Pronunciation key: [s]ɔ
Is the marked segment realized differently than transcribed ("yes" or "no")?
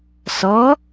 no